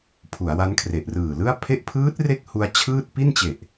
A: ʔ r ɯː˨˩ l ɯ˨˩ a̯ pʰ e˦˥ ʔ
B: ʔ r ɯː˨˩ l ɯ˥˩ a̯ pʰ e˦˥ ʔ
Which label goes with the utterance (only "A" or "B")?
B